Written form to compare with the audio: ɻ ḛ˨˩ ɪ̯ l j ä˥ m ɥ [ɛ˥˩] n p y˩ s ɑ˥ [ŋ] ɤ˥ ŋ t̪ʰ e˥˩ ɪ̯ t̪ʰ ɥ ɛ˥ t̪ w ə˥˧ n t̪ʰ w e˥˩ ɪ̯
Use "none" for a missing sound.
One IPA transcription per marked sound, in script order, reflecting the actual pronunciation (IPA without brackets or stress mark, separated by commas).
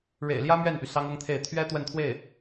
ɛ˥˩, ŋ